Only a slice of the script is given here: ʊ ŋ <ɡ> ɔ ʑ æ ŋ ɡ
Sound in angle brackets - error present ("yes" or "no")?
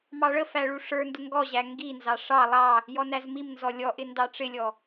no